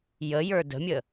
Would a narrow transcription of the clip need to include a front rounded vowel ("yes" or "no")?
no